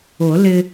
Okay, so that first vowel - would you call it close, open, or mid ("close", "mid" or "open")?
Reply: close